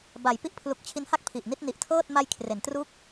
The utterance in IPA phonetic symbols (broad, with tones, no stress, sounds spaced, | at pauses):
b a˩˦ j p i˦˥ ʔ pʰ l u˨˩ k̚ t͡ɕʰ i˦˥ n h a˥˩ k̚ pʰ i˨˩ ʔ n i˥˩ t̚ n i˨˩ ʔ tʰ ɤː˥˩ t̚ m a˧ j kʰ r e˩˦ n t r u˦˥ k̚